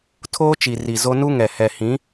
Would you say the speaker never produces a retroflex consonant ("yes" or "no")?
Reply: yes